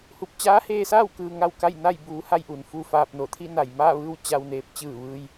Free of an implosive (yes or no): yes